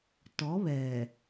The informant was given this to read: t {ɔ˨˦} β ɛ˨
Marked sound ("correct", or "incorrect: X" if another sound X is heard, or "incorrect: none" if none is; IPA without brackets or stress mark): correct